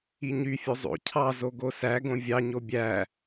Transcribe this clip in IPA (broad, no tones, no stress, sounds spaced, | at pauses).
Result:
i ɲ y fʲ o zˤ o̰ cʰ ɑ z o ɡ o s æ ɡ õ vʲ ɑ ɲ o bʲ æ